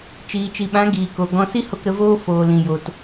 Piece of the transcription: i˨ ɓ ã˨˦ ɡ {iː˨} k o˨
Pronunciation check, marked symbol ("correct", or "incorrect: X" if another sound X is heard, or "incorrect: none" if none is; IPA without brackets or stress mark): correct